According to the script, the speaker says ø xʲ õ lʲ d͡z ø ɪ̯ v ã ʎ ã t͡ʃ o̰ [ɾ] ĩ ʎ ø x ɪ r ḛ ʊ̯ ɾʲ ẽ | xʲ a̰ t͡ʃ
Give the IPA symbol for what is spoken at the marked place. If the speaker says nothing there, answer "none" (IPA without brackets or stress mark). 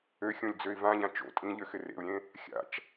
tʼ